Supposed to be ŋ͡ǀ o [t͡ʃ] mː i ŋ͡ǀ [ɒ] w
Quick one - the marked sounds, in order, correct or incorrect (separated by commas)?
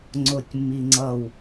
incorrect, incorrect